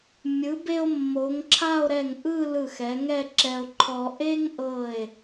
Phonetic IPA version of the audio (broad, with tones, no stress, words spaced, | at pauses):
mʲɯ˩˧be˧o̯ mːo˩˧ŋǁʰa˥˧o̯ɾɛ˧˩ŋʔɯ˥˧ lɯ˧˩xɛ˩˧ ŋɛ˥˧ǁɛ˧o̯ǃʰɔ˧ ʔe˥ŋʔɤ˧˩e̯